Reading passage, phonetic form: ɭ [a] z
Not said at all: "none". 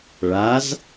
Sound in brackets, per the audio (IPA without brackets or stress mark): a